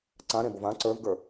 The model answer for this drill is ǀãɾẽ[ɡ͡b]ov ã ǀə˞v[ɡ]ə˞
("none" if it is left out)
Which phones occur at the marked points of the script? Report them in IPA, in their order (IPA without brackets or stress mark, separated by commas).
b, ɡ